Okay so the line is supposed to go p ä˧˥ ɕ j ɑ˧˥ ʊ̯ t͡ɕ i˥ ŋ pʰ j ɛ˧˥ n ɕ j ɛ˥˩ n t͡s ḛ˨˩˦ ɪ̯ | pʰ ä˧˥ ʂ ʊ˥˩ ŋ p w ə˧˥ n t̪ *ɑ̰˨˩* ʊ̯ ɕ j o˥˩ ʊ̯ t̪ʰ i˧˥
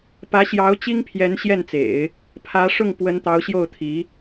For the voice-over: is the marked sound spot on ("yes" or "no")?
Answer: no